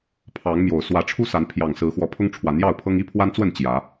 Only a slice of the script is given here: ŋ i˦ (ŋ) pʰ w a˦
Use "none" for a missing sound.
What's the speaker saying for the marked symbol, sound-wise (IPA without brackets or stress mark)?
none